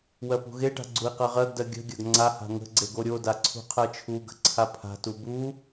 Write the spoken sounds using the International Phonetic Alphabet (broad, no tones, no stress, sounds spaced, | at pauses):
w ɜ p ṳ ɣ e ʈ a̤ ɡ͡ǀ u i̯ q ɜ ʁ ɜ ɡ d ɜ ɡʲ ə̤ ɡʲ ɐ ɡ ŋ͡ǀ a h a̤ ŋ ə̤ ɡ͡ǀ e ɡ o ɾʲ o d a ǀʰ ṳ qʰ ɜ t͡ʃʰ u ɡ ə̤ ǀʰ a pʰ a̤ t u b u